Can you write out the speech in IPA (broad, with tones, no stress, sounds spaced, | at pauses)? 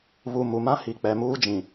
β u˨ m u˨ m ã˦ h i˨ k͡p ɛ˨ m uː˦ d͡ʒ ĩ˨